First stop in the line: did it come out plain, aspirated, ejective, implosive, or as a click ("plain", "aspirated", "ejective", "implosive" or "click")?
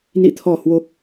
aspirated